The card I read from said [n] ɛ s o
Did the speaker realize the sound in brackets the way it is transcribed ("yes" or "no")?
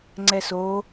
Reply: no